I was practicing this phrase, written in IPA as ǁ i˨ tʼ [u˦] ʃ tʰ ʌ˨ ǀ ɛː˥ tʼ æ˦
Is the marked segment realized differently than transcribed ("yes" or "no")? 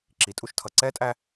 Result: no